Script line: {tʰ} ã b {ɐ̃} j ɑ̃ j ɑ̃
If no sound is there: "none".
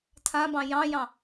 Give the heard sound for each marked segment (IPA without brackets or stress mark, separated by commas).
tʰ, ɑ̃